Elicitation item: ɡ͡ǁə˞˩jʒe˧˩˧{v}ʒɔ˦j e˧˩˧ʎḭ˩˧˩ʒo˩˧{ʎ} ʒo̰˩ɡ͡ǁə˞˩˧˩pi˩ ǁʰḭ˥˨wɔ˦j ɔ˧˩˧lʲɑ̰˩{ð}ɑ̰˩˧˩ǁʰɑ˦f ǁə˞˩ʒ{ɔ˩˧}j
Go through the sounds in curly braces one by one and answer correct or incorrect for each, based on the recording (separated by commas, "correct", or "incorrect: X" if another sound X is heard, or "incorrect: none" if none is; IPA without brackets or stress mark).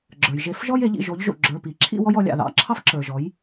incorrect: f, correct, correct, correct